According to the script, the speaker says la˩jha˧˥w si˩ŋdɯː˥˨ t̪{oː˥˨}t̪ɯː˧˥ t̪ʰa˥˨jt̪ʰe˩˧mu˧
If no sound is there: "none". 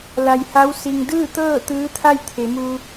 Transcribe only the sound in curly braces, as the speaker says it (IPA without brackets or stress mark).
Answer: ɤː˥˨